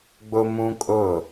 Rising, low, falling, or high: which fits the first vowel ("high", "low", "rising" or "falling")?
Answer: high